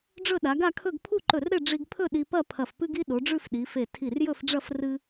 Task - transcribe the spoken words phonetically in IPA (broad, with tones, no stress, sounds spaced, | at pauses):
ɖ͡ʐ ɵ˥˧ ɗ a˩˧ ɡ a˥˧ kʰ ɵ˥˧ ɡ pʰ u˥˧ ǃ ɵ˧˩ r ɾ e˥˧ ɖ͡ʐ i˧ ɡ pʰ ɵ˥˧ ɗ i˧ p ɐ˥˧ pʰ ɐ˧˩ f p ɨ˥ ɡ i˥ ɗ o˩˧ ɖ͡ʐ ʉ˥˧ f ɗ i˩˧ f e˧˩ tʰ i˧˩ r j ɵ˥˧ f ɖ͡ʐ ɐ˥˧ f r ɨ˥